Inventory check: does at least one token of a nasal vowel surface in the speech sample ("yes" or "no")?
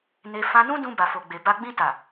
yes